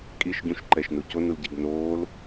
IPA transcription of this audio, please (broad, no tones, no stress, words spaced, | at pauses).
kʼiʃɟũʃǃɛʃnu conulɟiɡ noːl